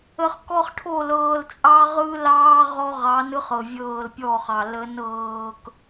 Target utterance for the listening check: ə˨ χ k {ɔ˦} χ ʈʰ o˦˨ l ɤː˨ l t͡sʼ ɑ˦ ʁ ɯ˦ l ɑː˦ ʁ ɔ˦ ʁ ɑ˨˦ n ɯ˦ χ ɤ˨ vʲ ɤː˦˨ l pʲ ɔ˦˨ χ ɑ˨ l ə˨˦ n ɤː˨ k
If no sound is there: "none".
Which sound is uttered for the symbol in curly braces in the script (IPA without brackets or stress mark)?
ɔ˦